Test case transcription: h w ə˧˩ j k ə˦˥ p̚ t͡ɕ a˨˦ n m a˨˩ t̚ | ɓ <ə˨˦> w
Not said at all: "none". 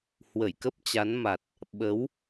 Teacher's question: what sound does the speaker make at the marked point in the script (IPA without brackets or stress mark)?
ə˨˦